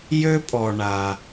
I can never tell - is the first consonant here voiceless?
no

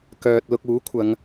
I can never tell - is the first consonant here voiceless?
yes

